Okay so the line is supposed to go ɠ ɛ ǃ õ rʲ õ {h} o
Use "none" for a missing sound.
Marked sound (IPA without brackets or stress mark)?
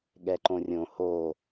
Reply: h